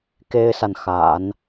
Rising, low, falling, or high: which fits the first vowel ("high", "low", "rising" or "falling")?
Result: high